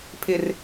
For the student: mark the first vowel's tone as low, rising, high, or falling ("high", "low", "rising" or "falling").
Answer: low